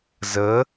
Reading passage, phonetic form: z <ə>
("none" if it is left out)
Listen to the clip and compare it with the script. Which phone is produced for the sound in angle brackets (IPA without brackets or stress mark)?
ə